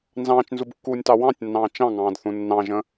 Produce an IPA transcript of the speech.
n z ɑ̃ː t͡ʃ n z u b kː uː nʲ t ɑ w ɑ̃ tʲ nː ɑ̃ː t͡ʃ ɑ̃ ŋ ɑ̃ː d θ ũ nː ɑ̃ ʒ ə̃

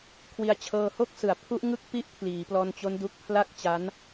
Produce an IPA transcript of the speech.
kʰ w i˧ a̯ t͡ɕʰ ɤː˧ h o˥˩ k̚ s ɯ˨˩ a̯ pʰ u˦˥ ʔ ŋ ɯ˦˥ k̚ p i˦˥ ʔ pʰ l iː˩˦ p l ɔː˧ n t͡ɕ o˦˥ n d u˦˥ k̚ pʰ l a˥˩ k̚ t͡ɕ a˦˥ n

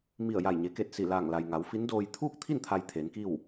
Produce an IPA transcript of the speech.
m i˧˩ ə̯ j a˧˩ j ɲ e˩˧ k e˧˩ t̚ s i˧˩ l aː˧˩ ŋ l a˩ j ŋ a˩˧ w f i˧˥ n d oː˧ j t̪ʰ uː˥˨ k̚ t̪ʰ i˥˨ n t̪ʰ a˧ j t̪ʰ e˩˧ n k i˥˨ w

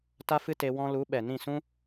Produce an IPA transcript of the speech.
t a˦ f ɨ˦ t e˧ w ɔ̃˧ l u˨˦ ɓ ɛ˨ n ĩ˦˨ s ũ˦

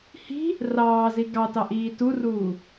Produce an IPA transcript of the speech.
h i̤ | r ɑː z i ɡ ɑ t ɑ ʔ iː t u r uː

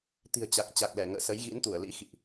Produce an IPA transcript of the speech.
t̪ i̤˨˩ ə̯ t͡ɕ a˨˩ k̚ t͡ɕ a˨˩ k̚ l ɛ˧˩ ŋ ə̰ː˧˨ s ə˨˦ j ɣ ḭ˧˥ n t̪ u˧˩ ə̯ l ḭ˧˥ x ḭ˧˨ ʔ

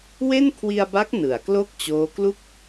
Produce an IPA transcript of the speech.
w e˥˩ n kʰ w i˧ a̯ b a˦˥ k̚ n ɯ˩˦ a̯ k l o˥˩ k̚ t͡ɕ oː˦˥ k l u˥˩ k̚

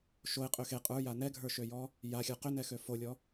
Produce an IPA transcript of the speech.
ʃ o e̯ qʼ ø x e qʼ ə˞ j a n ɛ ɡʱ ə˞ ʃ ø j ɔ | j a xʲ ə˞ q ʏ n ɛ x ø f o lʲ ɔ

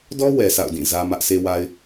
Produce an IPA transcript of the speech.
d ɔ˦ w ɛ˨ s a̰˦˨ ʊ̯ d ĩ˦˨ z ä˦ m ä˦ ʔ sʰ e˦ w a˦ ɪ̯

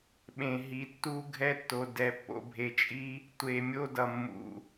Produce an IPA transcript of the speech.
ɓ ẽ˨ ɦ i˨ tː u˦ ɡʱ ɛ˦ tː o˨ d ɛ˨ pː o̰˨ bʱ e˨ t͡ʃʼ i˦ | tʷ e˨ mʲ o˦ d ʌ˨ mː ṵ˨

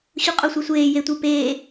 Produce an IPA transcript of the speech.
ɕ u qʼ o sʷ e sʷ eː j e tʷ i p eː

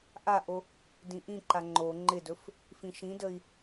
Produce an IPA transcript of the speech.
ʔ a ʔ o | d ĩ ʔ ĩ ǃ a ŋ͡ǃ o ŋ͡ǃ ɪ d ɵ f | f ĩ ʃ ĩ d ə i̯

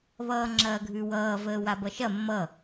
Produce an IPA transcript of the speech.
β ʌː ŋ͡ǁ ɐː ɡʱ ʉ w ʌː v əː w a b ʌ ʃ ɐ mː ʌ

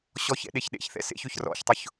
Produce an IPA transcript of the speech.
ɕ ɔ ç ɛ̰ ɗ e ç ɗ ḛ ç θ ɛ̰ s ḛ ç ø ç r ɔ̰ ç tˤ ʊ ç

